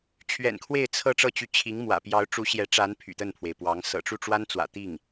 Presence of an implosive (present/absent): absent